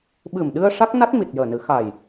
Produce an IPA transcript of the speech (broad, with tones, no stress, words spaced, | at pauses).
ɓɨ˨˩mɗɨ˧ə̯ ʂa˦˥k̚na˦˥t̚mi˨˩t̚ jəː˨˩nɨ˨˩˦xa˨˩j